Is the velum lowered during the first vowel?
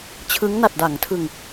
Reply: no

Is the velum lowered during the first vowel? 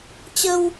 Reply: no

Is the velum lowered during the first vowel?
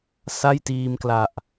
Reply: no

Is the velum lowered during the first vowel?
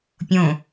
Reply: yes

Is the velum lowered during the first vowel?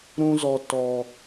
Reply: yes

